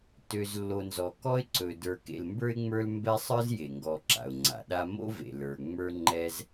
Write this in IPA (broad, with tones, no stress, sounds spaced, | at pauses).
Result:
t ø˨ z lː o˨ n z ɔ˩ k ɔ˦ ɪ̯ ǀ ɵ˩ d ə˞˨ k ḛ˨ l m b ə˞˥ ɪ̯ ŋ͡m ə˞˦ l m b ɛ˥ sˤ ə˞˦ z j e˩ ŋ ɡ ɔ˨ ǁ a̰˩ ʊ̯ ŋ͡ǀ a̰˩ ɗ a˦ m o̰˥ v ḛ˩ l ə˞˩ ŋ͡m ə˞˦ ŋ͡ǃ ɛ˦ z